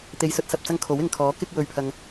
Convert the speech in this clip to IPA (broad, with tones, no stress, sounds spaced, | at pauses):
t̪ e˨ j s ɵ˧ t̚ s ɐ˨ p̚ t͡s ɐ˧ ŋ kʰ o˨˥ w ɪ˨ ŋ kʰ ɔː˨˥ k ɪ˧ k̚ w ɵ˨ ɥ pʰ ɐ˨ ŋ